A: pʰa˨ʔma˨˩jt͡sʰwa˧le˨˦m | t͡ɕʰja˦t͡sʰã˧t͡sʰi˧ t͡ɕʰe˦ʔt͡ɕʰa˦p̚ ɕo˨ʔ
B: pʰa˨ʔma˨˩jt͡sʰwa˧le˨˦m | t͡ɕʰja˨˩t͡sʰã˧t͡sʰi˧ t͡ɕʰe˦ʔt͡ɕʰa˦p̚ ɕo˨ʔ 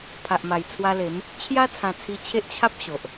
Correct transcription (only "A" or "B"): A